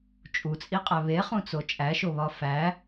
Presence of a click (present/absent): absent